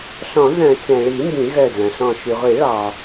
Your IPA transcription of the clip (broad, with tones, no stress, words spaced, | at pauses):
ɬɔ̃˨˩˦ðœ̃˨˩˦ t͡sɛ̃˩ɭi˨˩˦ mbĩ˨˩˦ɣœ˧˩dlɐ̃˩ɬɔ̃˧˩ ʃy˩ʁʷi˨˩˦ɭɑ˩